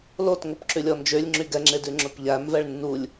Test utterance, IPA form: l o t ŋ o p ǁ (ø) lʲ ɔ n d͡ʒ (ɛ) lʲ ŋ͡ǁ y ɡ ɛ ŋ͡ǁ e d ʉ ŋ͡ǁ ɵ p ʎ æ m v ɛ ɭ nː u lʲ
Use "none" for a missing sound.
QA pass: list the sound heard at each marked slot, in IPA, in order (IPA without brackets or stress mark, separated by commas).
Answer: ʉ, ø